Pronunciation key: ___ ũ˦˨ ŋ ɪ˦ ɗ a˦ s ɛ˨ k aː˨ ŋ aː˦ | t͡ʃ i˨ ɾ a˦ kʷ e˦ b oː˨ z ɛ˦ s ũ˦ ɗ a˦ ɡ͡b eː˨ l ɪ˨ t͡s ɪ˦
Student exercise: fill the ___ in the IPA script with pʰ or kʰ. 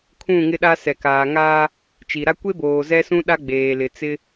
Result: kʰ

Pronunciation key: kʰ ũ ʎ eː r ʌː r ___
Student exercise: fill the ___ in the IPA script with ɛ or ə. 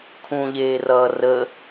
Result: ə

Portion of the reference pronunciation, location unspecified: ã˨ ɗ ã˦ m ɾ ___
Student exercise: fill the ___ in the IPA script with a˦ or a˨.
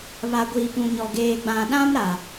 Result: a˨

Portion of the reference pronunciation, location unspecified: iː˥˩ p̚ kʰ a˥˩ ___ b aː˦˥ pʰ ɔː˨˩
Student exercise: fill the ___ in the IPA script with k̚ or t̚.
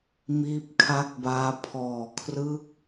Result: k̚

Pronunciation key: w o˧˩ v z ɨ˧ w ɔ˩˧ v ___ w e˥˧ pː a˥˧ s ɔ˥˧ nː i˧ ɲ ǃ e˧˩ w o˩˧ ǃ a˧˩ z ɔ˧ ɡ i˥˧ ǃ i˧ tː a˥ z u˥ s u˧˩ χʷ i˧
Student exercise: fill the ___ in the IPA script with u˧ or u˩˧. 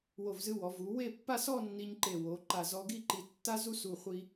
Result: u˩˧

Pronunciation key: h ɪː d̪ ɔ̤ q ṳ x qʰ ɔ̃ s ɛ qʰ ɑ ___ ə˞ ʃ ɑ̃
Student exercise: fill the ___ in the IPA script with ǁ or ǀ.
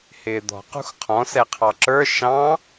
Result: ǁ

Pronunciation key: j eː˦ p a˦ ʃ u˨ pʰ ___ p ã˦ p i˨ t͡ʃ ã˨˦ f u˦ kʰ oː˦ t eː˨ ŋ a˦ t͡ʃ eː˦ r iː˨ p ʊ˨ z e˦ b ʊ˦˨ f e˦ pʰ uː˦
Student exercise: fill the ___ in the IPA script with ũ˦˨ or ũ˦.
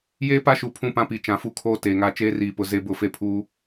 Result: ũ˦˨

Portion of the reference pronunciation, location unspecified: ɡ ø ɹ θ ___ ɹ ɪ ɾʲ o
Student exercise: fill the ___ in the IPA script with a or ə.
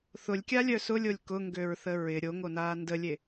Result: ə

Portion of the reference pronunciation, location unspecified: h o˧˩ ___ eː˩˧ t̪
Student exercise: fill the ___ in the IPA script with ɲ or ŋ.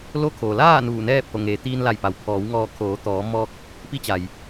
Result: ŋ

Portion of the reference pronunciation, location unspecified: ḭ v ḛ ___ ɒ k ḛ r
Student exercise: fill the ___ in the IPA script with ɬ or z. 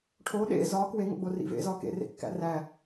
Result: z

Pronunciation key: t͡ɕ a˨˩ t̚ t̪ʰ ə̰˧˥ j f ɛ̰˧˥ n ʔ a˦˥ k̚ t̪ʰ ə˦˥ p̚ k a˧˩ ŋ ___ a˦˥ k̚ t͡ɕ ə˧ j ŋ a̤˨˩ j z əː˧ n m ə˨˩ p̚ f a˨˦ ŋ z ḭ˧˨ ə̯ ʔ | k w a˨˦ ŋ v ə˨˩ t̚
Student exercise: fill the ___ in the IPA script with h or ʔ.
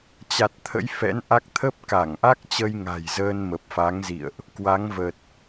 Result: ʔ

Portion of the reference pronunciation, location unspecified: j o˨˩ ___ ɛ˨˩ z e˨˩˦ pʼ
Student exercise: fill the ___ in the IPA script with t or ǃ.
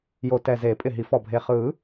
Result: t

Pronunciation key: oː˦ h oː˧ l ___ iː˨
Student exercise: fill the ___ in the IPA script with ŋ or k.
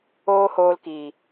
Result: k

